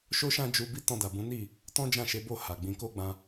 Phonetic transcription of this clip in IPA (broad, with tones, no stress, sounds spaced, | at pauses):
ʃ o˦ ʃ ã˦ d͡ʒ u˧ b i˦ t ɔ̃˧ d a˨ b ũ˨˦ n i˦˨ | t ɔ̃˦ d͡ʒ ã˦˨ ʃ e˨˦ b o˦˨ h a˨ ɡ͡b ĩ˧ k o˦ ɡ͡b ã˧